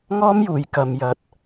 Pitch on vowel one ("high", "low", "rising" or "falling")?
high